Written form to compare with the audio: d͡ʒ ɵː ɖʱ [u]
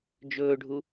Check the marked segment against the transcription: correct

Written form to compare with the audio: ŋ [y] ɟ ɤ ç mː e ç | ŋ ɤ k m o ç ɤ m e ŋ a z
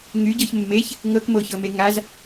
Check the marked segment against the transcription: correct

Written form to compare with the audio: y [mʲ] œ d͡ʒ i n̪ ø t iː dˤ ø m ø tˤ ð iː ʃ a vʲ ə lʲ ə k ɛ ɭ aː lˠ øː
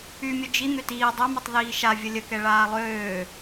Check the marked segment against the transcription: correct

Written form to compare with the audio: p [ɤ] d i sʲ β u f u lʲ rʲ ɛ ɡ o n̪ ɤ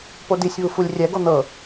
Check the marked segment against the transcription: incorrect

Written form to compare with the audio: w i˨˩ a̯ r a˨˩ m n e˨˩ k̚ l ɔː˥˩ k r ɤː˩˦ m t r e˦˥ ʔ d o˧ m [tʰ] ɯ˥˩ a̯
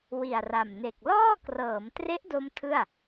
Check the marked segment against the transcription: correct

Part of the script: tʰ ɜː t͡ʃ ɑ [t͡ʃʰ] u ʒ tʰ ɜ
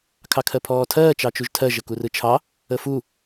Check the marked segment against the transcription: incorrect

